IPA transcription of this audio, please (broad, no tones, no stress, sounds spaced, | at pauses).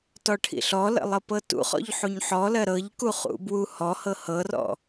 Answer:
t ɔ ʈʰ ḭ ɬ ɔ l ə̰ lˠ ɤ p ɤ t ṵ χ ɔ̰ ʎ ħ u ɲ ħ ɔ l ɜ ɾ ɤ ʎ k u χ ṵ b w u h ɔ h ɤ h ɤ r ɔ̰